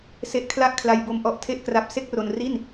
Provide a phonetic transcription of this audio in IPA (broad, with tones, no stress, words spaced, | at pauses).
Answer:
se˦˥ʔkʰla˥˩ʔkʰla˧jbo˧m ʔɔ˦˥ʔtʰe˥˩ʔkra˦˥p̚ se˥˩k̚ro˧n ri˥˩n